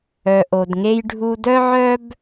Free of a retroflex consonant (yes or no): no